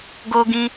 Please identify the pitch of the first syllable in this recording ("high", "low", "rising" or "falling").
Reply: high